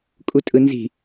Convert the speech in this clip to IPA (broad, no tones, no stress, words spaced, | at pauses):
kʼutʼɯnzi̤